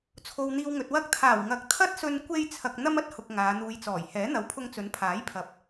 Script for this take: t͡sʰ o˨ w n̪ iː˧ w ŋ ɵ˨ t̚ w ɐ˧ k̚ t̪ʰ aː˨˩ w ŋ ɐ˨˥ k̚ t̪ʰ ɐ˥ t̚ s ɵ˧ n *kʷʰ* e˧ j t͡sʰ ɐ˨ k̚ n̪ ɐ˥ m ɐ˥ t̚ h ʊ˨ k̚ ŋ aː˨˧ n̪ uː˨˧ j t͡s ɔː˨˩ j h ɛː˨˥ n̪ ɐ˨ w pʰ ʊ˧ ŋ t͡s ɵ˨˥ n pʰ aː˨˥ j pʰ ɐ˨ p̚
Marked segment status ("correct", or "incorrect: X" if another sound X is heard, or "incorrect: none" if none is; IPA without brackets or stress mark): incorrect: kʷ